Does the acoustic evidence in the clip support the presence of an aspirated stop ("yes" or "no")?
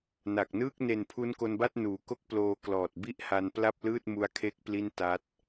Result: yes